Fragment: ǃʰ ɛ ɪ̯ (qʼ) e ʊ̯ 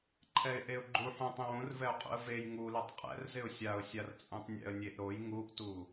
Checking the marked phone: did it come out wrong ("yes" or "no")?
yes